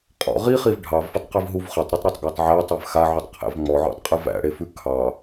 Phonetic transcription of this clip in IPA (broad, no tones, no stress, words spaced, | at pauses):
qʼɔ̰ ʁiχiv ɖʱɑvfətˤqivɦuv χətˤɾetˤɾɑtˤɡɑtˤ ʕætˤæv xaʕutˤqʰæ̰v ŋ͡mɔʕɔ̰tˤqʼɨ væ̰ɽefʉ kʰɑ